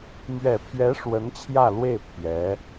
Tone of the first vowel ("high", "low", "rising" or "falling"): low